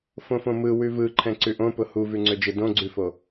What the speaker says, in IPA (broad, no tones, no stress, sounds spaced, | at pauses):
f õ f õ m ɯ w ʉ v ɯ ǃʰ ɛ̃ ǀ ʉ ʔ õ p ʊ h u v ʉ ŋ͡ǀ ø d͡ʒ ɯ d õ ɡ͡ǀ ʉ f o